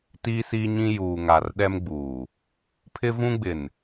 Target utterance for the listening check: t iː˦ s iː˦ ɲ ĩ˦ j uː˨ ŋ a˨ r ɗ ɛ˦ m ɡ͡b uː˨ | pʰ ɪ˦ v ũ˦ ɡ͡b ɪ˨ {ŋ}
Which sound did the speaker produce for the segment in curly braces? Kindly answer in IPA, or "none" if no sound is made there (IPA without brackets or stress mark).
n